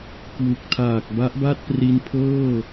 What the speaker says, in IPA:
k w u˨˩ k̚ tʰ aː˨˩ k̚ b a˦˥ ʔ b a˥˩ t̚ p r i˧ n pʰ ɤː˥˩

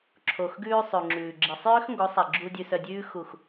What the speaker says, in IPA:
ǁʰ o˨ x ɡ ʉː˧ sˤ ʉ˨ ŋ͡ǁ ʉː˨ ɡ͡ǁ i˨ sˤ j ø˦ x ŋ ɡ o˨˦ sˤ i˨ ɡ͡ǁ u˧ dʲ ʉ˧ s œ˧ dʲ ʉː˦ x u˦˨ x

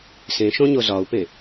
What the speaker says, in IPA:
s ẽ ʃ õ ɲ o z ɒ u̯ p ẽ

